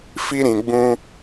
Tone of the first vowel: high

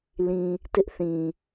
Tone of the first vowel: low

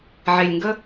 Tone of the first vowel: low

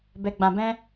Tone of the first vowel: low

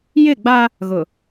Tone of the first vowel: falling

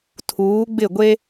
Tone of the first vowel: rising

